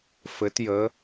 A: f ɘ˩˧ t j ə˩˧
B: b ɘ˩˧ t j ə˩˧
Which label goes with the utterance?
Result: A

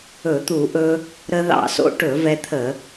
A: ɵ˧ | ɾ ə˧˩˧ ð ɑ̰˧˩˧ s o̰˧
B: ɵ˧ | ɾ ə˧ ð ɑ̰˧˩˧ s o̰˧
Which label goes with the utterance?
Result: B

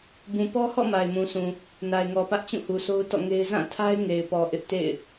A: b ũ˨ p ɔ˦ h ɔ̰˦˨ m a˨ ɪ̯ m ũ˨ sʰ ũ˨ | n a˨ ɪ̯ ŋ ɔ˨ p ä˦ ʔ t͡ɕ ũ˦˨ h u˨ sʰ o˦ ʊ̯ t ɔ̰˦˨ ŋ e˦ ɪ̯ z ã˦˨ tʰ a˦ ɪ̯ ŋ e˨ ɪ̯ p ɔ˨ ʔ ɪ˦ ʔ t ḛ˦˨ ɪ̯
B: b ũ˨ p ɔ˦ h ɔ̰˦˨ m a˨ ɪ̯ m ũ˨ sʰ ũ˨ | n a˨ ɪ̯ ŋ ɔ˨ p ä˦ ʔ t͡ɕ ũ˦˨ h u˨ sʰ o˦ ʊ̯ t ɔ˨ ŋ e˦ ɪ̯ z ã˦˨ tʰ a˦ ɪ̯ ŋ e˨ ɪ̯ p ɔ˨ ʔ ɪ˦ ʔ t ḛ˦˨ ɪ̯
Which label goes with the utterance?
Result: A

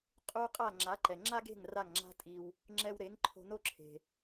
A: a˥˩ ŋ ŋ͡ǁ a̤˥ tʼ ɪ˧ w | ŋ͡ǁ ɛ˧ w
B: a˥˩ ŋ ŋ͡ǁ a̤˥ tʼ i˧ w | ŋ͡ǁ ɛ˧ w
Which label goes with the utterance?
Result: B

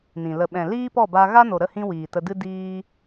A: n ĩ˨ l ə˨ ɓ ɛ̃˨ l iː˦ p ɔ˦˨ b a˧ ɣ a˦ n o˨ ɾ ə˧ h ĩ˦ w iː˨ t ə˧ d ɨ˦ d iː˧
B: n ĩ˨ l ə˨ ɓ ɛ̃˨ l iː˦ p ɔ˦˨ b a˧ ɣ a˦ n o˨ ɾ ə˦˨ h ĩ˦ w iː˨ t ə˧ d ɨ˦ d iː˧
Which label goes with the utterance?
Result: B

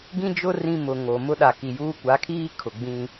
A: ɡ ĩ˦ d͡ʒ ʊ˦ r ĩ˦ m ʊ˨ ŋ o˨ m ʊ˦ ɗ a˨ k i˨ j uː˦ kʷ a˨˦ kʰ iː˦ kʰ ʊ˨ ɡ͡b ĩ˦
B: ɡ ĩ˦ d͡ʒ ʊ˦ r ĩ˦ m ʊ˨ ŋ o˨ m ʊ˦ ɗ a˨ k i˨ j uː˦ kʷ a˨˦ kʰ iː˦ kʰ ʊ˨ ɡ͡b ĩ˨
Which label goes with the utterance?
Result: A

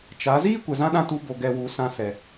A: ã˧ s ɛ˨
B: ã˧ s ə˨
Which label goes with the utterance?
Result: A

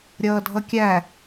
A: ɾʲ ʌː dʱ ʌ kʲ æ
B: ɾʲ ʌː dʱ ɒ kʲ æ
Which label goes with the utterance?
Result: A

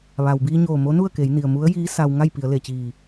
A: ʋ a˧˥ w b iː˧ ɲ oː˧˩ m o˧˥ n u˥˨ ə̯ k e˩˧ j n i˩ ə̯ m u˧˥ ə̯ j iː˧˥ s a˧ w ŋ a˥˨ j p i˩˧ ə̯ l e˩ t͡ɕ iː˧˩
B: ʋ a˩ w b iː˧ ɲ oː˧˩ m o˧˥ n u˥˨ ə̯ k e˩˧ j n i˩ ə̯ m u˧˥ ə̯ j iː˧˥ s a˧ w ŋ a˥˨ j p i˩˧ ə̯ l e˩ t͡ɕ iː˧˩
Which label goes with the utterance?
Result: B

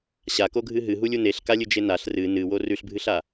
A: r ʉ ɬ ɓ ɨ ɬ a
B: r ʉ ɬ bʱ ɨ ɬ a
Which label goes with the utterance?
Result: B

